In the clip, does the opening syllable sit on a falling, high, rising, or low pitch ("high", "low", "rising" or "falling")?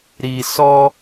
low